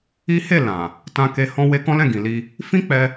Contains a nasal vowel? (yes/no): yes